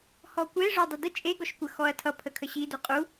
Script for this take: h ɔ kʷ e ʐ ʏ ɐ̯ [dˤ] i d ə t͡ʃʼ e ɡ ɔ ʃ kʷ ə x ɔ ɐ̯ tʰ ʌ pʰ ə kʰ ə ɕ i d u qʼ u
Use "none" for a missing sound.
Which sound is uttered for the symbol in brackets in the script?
dˤ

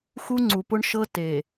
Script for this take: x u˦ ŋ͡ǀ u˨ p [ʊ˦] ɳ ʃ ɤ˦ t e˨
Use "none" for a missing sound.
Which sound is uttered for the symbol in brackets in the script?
ʊ˦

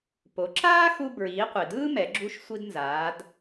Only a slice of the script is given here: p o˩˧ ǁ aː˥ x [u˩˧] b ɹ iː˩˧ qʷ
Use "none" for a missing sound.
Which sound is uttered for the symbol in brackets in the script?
u˧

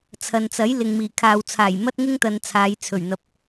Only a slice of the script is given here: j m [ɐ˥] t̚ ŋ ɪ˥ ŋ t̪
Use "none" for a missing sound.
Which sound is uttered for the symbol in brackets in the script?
ɐ˥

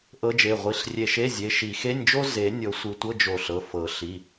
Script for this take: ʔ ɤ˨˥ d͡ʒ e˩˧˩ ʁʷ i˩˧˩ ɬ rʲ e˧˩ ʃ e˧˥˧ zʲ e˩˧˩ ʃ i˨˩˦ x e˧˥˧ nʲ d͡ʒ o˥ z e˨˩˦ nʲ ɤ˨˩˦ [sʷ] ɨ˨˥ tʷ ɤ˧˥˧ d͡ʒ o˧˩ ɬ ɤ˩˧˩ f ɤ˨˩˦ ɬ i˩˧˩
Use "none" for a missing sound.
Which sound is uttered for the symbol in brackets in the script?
sʷ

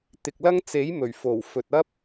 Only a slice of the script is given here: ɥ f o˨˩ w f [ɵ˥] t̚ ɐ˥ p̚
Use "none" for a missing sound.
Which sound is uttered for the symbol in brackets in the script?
ɵ˨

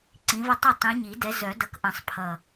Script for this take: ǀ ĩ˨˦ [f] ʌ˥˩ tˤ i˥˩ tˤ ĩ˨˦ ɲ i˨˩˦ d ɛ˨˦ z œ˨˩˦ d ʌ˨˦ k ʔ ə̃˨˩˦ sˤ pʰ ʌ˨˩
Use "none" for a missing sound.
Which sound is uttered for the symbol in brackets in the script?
v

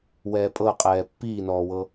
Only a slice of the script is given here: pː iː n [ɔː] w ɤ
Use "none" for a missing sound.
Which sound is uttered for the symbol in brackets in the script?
ɔː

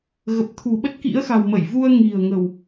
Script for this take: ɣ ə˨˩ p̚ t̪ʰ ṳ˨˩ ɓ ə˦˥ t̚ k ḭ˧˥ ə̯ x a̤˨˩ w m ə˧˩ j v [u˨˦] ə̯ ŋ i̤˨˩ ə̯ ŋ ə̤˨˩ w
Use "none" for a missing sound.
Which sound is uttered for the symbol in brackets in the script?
u˧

